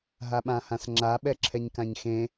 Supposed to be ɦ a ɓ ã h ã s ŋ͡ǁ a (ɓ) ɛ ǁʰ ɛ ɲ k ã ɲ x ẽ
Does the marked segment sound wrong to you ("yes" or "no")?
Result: no